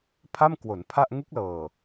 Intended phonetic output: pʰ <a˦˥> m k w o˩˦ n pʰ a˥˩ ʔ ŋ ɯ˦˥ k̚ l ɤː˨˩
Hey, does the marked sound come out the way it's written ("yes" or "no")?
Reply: no